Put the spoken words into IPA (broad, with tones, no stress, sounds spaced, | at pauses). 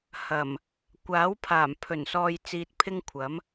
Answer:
h ɐ˨˩ m | kʷ aː˨˥ w pʰ aː˨˩ m pʰ ɵ˨˩ n s ɔː˧ j t͡s iː˧ t̚ pʰ ɪ˥ ŋ kʷʰ ɐ˨˥ m